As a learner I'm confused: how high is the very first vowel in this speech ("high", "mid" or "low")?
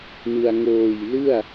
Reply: high